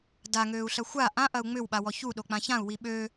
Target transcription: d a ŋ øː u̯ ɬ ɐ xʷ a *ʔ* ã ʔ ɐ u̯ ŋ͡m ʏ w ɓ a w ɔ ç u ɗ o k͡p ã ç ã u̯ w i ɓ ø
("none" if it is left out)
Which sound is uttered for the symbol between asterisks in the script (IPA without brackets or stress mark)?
ʔ